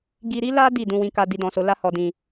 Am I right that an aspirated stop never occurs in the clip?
yes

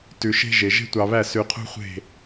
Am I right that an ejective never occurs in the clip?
yes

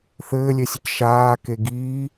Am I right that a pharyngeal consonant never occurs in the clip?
yes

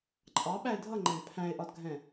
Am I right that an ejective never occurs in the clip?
no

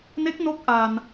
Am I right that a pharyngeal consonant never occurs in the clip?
yes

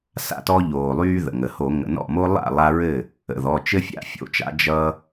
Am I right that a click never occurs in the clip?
yes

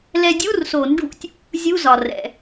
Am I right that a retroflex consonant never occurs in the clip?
no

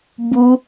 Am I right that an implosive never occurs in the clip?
yes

